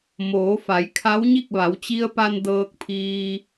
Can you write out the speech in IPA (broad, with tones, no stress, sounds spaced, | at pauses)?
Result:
m oː˩˧ f a˩˧ j kʰ a˧˥ w ɲ i˥˨ k̚ ʋ a˩˧ w t͡ɕ i˧ ə̯ p a˧ n d ɤː˧ k̚ pʰ iː˧